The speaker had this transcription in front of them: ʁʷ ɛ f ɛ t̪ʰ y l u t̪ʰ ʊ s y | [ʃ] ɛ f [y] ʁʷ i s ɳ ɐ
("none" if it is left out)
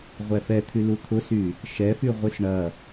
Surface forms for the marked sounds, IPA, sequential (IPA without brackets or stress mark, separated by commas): ʃ, y